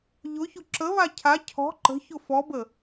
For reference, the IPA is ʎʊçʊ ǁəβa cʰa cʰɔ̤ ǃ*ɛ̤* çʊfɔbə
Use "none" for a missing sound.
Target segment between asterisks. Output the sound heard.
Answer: ə̤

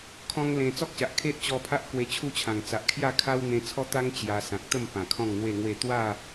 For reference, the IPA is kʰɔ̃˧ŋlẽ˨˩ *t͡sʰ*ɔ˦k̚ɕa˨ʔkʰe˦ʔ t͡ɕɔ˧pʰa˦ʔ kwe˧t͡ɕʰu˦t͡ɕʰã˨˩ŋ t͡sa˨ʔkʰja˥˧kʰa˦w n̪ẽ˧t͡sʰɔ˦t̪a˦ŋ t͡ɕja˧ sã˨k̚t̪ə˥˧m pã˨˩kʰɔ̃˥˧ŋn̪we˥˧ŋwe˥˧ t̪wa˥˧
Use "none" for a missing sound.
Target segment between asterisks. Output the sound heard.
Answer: t͡s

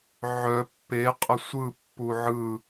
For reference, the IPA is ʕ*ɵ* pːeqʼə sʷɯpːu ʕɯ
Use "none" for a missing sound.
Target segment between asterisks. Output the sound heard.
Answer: œ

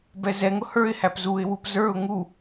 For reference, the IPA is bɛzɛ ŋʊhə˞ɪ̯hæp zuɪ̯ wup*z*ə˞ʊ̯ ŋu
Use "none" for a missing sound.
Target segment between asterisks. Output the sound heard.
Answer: z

